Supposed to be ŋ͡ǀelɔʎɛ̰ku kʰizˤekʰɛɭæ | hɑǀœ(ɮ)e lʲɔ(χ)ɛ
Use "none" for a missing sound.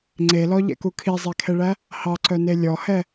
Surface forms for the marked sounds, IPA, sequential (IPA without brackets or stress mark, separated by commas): n, h